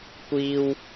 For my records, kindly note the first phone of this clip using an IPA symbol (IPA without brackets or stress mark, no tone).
kʷ